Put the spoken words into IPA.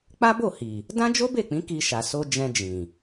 k͡pa˦bo˦˨hi˨ | dã˦d͡ʒo˦be˦˨k͡pĩ˨˦ ki˧ʃa˨ so˧ d͡ʒɛ̃˧ d͡ʒĩ˨

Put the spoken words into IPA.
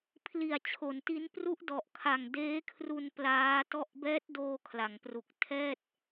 pʰli˨˩a̯t͡ɕʰo˩˦nti˦˥n pru˦˥ʔdɔ˨˩ʔ kʰa˨˩ŋdeː˦˥kʰru˧n plaː˦˥tɔ˥˩ʔ bɛː˦˥t̚doː˧ kʰla˩˦ŋpru˨˩k̚ tʰɛː˥˩t̚

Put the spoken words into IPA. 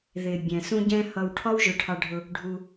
ðɪ˨ bʲɛ̃˨sũ˦ɟɛ̃˦hʌ˧w ʈʰɒ˦wʒʊ˧ʈʰɑ˧ɖʱʊ˧ | ɖʱu˧

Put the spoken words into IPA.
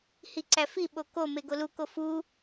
hiǀæfi ɓoko meɡolu kofu

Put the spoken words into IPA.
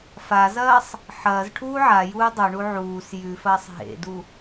fazɐːsˤ | ħɐːzʈʰuː ʕajuː dˤoɳu ʕuːs jʉfɐːsˤ ɦḛdu

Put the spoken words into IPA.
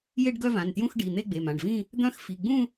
je˥˧ɖɡœ˥˧vã˩˧˩ntjũ˥˧x ɖi˩˧˩n̪e˥˧ɡ͡be˩˧˩ mã˩˧˩ɖvĩ˥˧ | d̪œ̃˥˧x fi˩˧˩ ɡ͡bũ˥˧

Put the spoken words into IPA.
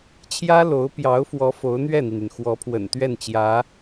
t͡ɕʰjä˥lo˧˥ʊ̯pjɑ˧˥ʊ̯fwɔ˧˥ fo˧˥ʊ̯n̪ɥɛ˥˩n̪i˩ny˩n xwɔ˧˥pʰwə̰˨˩n t̪ɥɛ˥˩nt͡ɕjä˧˥

